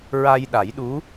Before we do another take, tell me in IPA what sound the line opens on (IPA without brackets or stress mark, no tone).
ɹ